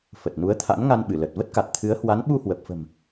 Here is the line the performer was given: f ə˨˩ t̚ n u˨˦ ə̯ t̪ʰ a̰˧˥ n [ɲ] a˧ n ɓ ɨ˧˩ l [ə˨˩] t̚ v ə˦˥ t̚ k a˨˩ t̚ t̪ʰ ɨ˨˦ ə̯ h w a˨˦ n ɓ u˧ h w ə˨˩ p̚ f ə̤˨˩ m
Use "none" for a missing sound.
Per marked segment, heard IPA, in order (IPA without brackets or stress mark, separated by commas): ŋ, ə˨˩